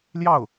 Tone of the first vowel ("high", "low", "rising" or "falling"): falling